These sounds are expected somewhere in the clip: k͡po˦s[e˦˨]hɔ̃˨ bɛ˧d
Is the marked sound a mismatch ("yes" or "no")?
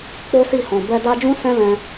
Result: yes